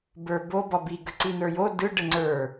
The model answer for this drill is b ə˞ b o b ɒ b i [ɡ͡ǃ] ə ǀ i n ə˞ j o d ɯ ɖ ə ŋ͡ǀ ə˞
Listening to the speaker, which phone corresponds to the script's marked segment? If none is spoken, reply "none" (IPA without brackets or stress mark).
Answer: ɡ